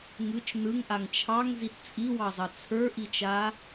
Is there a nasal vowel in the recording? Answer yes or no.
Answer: no